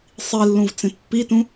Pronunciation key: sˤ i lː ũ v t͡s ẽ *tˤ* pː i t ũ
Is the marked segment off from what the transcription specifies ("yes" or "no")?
yes